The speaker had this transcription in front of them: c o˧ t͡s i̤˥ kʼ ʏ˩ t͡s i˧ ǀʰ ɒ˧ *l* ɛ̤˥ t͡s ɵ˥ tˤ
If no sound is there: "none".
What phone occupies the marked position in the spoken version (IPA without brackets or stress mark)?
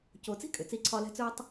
l